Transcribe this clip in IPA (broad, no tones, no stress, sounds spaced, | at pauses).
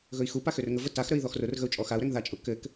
ɣ ɵ i̯ x u p a x ø r ŋ ə v ə t a x ɾ ə i̯ ð ɔ x r ʊ r ɣ ə u̯ t͡ʃʼ ɔ x a u̯ ɾ ɛ ŋ ð a t͡ʃʼ ʊ k ɘ k